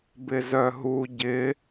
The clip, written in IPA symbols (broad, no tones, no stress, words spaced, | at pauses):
bɪzœɦu ɟɪ